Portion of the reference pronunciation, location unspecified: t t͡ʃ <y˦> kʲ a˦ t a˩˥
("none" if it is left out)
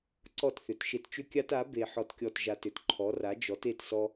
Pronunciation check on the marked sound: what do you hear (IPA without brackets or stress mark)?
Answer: ʏ˦